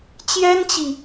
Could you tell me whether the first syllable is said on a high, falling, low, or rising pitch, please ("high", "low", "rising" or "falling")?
high